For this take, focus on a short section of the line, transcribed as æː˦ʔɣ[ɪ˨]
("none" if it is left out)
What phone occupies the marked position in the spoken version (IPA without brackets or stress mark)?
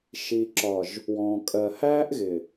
ɪ˨